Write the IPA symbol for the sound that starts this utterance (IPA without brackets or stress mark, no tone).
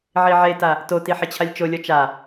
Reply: ʕ